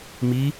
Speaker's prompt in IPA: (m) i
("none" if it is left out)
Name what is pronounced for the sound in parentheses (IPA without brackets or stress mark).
m